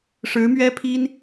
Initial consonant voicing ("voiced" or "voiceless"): voiceless